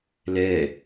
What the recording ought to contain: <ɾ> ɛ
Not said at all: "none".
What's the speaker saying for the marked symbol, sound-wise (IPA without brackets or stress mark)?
l